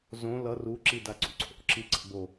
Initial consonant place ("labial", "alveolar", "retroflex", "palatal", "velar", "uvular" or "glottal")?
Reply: alveolar